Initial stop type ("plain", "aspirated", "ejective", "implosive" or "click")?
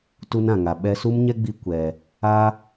plain